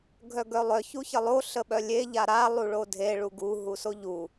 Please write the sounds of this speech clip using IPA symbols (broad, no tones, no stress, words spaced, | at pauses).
ɡʱœɡœlˠœ çuçəlˠo ɬəɓœlʲe ʎaɾa lˠuɭodʱe ɭuɡu ɦusoʎu